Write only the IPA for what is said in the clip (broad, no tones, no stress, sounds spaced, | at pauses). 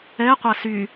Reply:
ɛ qʷ a s y